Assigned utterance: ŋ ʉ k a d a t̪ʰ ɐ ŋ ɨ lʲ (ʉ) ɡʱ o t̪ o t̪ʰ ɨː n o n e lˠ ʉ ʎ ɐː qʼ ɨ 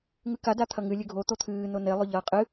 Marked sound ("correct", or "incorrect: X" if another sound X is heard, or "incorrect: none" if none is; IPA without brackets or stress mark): correct